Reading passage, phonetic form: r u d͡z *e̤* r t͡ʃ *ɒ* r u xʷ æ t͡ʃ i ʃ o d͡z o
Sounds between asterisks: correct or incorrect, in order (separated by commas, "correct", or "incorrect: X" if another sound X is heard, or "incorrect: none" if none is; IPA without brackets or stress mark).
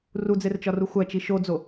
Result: incorrect: e, correct